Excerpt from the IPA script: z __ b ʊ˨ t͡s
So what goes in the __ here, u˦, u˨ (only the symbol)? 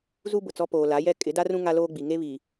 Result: u˦